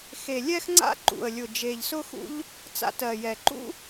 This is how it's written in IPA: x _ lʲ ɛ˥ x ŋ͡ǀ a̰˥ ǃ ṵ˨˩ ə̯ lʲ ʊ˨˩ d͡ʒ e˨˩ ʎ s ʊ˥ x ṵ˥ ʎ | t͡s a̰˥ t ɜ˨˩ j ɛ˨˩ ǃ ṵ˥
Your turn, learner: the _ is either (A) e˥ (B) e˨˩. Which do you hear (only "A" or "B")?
B